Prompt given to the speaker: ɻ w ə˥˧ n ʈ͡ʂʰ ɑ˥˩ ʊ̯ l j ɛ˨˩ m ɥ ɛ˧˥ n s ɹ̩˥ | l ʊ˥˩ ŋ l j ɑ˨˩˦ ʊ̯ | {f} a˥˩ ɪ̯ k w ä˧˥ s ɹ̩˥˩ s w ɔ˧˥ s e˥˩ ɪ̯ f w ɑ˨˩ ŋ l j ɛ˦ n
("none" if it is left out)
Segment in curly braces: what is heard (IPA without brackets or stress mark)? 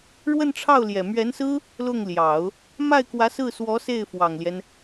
m